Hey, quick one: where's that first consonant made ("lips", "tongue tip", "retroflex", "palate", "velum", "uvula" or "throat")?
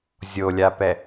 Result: tongue tip